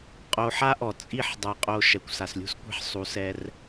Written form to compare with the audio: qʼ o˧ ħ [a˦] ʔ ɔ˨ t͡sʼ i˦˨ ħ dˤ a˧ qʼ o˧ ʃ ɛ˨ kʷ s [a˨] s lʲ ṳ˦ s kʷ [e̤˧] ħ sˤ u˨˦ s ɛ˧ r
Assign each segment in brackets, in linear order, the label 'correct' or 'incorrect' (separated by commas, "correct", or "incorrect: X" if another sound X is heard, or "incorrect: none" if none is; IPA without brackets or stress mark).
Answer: correct, correct, correct